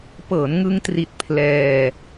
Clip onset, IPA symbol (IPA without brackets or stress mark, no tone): p